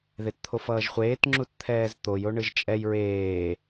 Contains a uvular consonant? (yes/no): yes